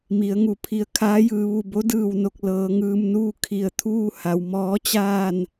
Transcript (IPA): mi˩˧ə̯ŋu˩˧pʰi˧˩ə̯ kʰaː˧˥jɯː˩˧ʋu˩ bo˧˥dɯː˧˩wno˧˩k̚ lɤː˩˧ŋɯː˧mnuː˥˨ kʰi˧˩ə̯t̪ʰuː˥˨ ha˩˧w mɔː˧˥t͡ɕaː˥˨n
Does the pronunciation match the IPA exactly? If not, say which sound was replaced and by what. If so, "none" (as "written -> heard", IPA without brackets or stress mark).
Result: none